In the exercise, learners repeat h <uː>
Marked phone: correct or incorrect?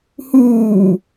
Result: correct